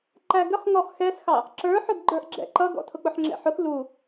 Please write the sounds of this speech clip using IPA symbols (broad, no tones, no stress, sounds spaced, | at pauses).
ǃ æ ɡ ə χ ŋ ɔ χ x ɛ s x ɑ | ǁ ə˞ ħ ʊ ɡ ɡ͡ǃ ə˞ ʔ ɡ͡ǁ ɛ̰ ǃ ʌ ɡ ɔ̰ tʰ ʊ k͡p ʊ ħ ŋ͡ǁ ɛ̰ ħ ʊ x l u